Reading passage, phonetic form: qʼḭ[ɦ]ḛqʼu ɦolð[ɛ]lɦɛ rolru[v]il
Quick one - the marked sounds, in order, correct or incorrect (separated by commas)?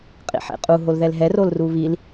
incorrect, correct, incorrect